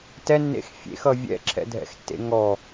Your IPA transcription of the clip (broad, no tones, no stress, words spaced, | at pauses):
tɛnːḛx fʲḛxʌ vʲɛ̰ǁʰɛ̰dʱɛ̰xtːḛ ŋɔ